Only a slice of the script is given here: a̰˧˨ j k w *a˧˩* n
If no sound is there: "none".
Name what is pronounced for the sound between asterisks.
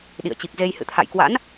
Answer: a̰˧˥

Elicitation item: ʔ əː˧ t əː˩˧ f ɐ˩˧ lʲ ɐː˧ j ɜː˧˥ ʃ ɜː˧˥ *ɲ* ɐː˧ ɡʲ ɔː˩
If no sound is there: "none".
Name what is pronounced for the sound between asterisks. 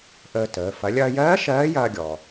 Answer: j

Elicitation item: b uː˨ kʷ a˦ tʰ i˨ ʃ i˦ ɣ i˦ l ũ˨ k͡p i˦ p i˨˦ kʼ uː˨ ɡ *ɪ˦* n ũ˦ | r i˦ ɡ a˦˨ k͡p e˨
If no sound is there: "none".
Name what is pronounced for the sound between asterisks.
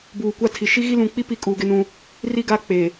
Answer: ɪ˦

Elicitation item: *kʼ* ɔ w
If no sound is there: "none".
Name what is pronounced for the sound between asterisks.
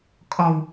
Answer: kʼ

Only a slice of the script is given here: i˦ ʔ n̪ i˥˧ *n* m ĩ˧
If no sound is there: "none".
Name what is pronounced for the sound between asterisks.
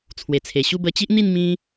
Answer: n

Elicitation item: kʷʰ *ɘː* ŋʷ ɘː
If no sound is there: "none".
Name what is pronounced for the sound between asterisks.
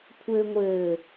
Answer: ɘː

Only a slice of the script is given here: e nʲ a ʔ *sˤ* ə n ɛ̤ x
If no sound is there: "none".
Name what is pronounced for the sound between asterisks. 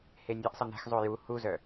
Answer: sˤ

